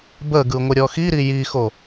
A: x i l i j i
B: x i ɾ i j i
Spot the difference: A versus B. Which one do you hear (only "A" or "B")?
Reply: B